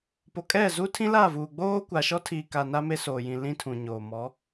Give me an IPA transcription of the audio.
po˨kʼɛ˦˨zu˦ tʰĩ˦la˦˨vuː˨ ɡ͡boː˦ kʷa˨ʃɔ˦tʰiː˨ka˨ na˦me˦soː˨jĩ˨ lĩ˦tʰũ˨ɲoː˨ mɔ˨˦

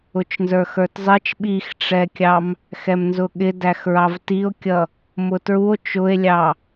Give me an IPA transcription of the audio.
ʊt͡ʃnzə˞xə˞tzˤɪt͡ʃ ɓixʈ͡ʂɛkʲɑm | xɛmnzʊɠɪ dæxɹɑvtio̯kʲʌ | mʊtɹuo̯ t͡ʃʊe̯lʲɑ

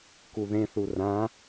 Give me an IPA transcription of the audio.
kuðẽθu rã

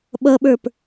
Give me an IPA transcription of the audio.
ɓʌɓə˞p

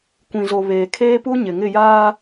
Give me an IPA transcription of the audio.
kʷĩ˨zo˨ βeː˨kʰeː˦pu˦ ɲɪ˨ŋɪ˦˨jaː˦

